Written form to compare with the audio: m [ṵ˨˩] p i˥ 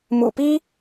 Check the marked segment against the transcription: correct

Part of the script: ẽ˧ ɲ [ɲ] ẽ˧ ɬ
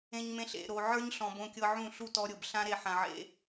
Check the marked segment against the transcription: incorrect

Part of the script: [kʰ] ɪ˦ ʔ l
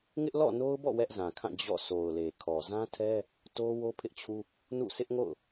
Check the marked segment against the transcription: incorrect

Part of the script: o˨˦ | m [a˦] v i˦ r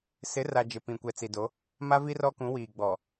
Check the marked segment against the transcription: correct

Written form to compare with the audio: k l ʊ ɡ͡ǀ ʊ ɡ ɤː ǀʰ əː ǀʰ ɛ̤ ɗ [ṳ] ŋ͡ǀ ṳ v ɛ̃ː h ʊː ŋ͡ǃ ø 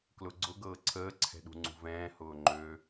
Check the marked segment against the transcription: correct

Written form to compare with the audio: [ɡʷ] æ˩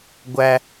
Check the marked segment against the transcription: correct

